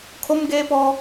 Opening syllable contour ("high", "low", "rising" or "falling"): high